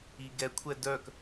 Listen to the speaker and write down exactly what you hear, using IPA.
iɡɛkʷʰɛ dœk

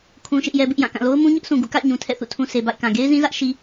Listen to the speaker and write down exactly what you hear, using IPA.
kʰũ˦ʃɪ˦ʔjɛ˦bɪ˦ʔ jã˦˨kã˦˨ lo˦ʊ̯mũ˦ɲʊ˦ʔsũ˨ ɡṵ˦˨ ka̰˦˨ɪ̯ɲũ˨ tʰɛ̰˦˨θṵ˦˨ tʰũ˨ se˨ba̰˦˨ɪ̯kã˨ ɡe˦ɪ̯zĩ˦zä˦ʔ ʃi˦

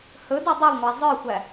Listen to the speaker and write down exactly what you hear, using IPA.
hɵdo dˤʊlˠŋʷæ zˤə˞xʷæ

